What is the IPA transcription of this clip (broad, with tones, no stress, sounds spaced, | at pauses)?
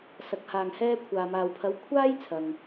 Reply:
s ɐ˨ k̚ h aː˨ ŋ h ɛː˧ kʷʰ aː˨ m aː˨ w pʰ ɐ˨˧ w kʷʰ aː˥ j t͡sʰ ɐ˨ ŋ